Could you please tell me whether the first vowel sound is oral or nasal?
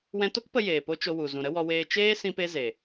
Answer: nasal